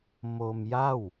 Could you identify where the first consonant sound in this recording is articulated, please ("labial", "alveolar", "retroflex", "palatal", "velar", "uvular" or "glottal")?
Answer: labial